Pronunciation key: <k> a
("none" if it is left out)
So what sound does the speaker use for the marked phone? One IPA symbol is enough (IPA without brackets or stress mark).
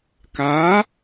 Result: k